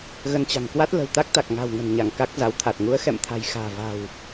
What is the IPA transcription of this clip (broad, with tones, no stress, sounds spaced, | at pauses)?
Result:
ɣ ə˧ n t͡ɕ a̤˨˩ ŋ k w a˦˥ t̚ l ə̤˨˩ w t̪ a˦˥ k̚ t̪ a˨˩ k̚ ŋ a̤˨˩ w ŋ ə̤˨˩ n ɲ a˧˩ ŋ k a˦˥ k̚ z a˨˦ w t̪ʰ a˨˩ t̚ ŋ u˨˦ ə̯ x ɛ̰˧˨ m t̪ʰ a̤˨˩ j x a̤ː˨˩ v a̤˨˩ w